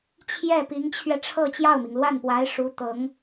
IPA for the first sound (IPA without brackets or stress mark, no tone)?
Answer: t͡ɕʰ